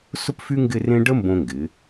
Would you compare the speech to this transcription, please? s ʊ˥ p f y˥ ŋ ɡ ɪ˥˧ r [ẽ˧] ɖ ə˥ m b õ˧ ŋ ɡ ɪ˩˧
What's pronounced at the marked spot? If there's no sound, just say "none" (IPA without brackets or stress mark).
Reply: ẽ˥